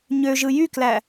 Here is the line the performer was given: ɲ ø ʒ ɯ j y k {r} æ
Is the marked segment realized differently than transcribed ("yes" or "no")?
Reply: yes